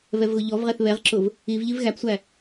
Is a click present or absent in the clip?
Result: present